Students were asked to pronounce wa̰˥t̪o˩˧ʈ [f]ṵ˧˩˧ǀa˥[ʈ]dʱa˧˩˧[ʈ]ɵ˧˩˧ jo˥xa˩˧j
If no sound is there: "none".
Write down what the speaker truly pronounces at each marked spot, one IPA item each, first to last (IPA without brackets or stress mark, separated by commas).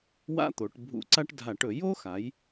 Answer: bʱ, ʈ, ʈ